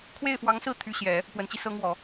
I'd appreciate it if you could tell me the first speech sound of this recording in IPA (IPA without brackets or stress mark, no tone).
kʰ